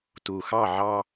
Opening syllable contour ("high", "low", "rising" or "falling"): low